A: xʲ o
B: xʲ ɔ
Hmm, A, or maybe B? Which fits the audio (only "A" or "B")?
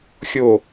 A